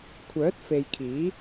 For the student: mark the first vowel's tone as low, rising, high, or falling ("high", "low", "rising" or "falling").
rising